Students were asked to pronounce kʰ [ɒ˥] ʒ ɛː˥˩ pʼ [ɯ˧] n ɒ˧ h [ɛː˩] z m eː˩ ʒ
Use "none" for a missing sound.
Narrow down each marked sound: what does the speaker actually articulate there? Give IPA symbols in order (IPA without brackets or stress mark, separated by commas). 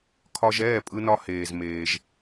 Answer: ɒ˧, ɯ˧, eː˩